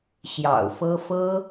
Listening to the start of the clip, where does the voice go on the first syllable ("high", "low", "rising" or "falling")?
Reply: low